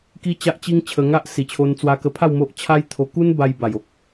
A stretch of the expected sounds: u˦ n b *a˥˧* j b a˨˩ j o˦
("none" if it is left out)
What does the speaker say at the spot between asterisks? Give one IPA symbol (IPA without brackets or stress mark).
a˧